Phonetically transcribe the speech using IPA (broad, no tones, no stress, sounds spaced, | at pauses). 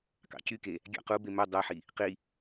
k ɑ̰ c y k e | ɡʲ ɑ̰ q u b e m ɵ dˤ œ ħ i | q i